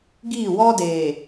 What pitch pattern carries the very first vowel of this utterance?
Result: falling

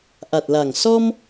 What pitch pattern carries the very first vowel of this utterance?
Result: low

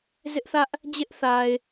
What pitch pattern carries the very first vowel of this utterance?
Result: high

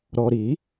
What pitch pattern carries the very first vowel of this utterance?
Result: low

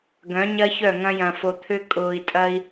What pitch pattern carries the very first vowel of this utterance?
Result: rising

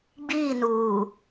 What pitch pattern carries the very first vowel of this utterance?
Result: falling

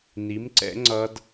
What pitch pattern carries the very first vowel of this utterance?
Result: rising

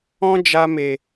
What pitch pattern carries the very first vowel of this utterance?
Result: high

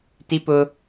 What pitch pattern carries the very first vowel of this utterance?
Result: high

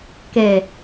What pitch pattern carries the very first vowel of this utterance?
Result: low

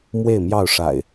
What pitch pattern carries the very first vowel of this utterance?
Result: falling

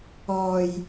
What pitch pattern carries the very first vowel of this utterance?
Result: low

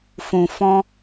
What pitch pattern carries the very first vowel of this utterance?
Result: low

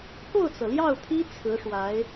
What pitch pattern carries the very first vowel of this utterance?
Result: falling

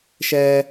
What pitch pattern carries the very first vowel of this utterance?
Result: high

